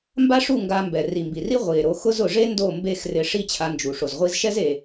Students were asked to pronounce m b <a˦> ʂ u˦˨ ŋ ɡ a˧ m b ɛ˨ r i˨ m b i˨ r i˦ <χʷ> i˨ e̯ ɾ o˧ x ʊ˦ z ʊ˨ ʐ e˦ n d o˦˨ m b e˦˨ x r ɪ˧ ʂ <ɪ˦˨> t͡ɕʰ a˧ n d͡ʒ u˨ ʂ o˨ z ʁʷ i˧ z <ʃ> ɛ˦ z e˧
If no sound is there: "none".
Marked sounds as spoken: a˦, ʁʷ, i˦˨, ʃ

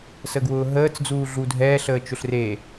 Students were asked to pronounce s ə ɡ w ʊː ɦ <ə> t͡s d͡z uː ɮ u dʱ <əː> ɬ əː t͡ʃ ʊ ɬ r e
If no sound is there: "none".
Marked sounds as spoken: əː, ɛː

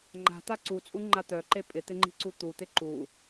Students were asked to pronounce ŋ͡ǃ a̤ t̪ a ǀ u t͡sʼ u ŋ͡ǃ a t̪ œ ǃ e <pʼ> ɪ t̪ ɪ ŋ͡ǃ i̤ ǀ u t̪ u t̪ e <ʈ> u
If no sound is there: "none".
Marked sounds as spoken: pʼ, ǃ

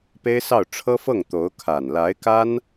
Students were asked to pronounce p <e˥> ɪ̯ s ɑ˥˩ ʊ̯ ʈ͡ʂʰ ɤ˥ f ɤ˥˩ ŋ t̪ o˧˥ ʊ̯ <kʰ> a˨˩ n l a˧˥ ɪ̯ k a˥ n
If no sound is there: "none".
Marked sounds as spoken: e˥, kʰ

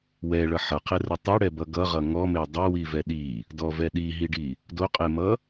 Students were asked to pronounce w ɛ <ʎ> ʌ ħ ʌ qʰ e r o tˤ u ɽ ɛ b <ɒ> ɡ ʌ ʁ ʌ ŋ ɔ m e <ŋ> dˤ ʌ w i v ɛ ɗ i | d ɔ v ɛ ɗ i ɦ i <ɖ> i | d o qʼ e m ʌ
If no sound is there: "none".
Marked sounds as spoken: ɭ, ʌ, none, ɖ

